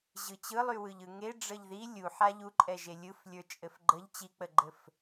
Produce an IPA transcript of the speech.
ʑ ɯ t͡ɕ ɯ lˠ y w ɯ ʎ ɯ ŋ e ɖ͡ʐ ə ʎ ð i lʲ u ħ a ʎ u ǃʼ ɛ ʒ e lʲ ɯ f lʲ ə˞ t͡ʃʼ ɘ f ɡ͡ǃ ə ʎ t͡ɕ i k͡p ə ɡ͡ǃ ɘ f

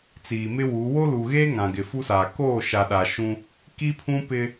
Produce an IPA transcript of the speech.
t͡s iː˨ m ɪ˦ w u˨˦ w o˦ l u˨ ɣ eː˦ ŋ ã˨ ɡ ɪ˨ f u˦ s aː˨ k oː˦˨ ʃ a˨ ɗ a˨ ʃ ũ˦ | k i˦ pʰ ũ˦ p ɪ˦

